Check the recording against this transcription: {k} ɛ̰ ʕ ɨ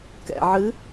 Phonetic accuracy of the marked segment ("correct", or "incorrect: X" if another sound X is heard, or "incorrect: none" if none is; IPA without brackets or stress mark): correct